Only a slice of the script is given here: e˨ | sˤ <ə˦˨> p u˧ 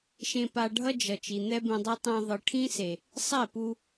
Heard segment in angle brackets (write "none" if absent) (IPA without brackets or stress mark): ɛ˦˨